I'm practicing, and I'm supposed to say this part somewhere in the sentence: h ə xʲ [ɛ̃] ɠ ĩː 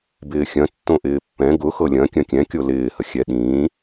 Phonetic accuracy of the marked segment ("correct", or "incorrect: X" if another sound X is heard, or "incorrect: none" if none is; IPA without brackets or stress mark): incorrect: ɛ